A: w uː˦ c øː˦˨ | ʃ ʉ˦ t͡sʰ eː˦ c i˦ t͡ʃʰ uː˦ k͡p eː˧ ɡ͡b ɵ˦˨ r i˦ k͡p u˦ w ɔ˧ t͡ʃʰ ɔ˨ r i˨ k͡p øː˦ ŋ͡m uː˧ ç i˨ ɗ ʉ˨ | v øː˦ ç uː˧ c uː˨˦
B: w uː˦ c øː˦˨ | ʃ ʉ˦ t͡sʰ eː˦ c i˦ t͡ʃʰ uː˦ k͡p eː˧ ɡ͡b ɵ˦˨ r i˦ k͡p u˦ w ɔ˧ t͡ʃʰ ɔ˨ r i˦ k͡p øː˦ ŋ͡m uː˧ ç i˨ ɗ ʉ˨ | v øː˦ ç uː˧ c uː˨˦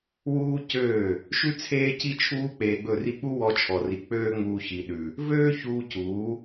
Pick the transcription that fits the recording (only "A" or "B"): A